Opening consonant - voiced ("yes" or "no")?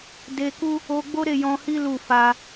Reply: yes